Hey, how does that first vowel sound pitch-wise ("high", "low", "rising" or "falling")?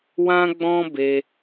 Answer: high